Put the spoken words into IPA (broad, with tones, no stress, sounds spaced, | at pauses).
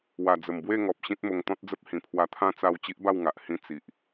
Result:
w a˨˩ d͡z ə˨˩ m b w e˥˧ ŋ ɔ˨ p̚ ɕ ĩ˦ t̚ m o˧ ŋ t̪ ɔ̃˦ t̚ d͡z ə˦ p̚ h ĩ˨˩ pʰ w a˧ t̪ʰ ã˦ t͡s a˥˧ w t͡ɕ i˦ ʔ b a˥˧ w ŋ a˨ ʔ h ĩ˦ t͡s i˨ ʔ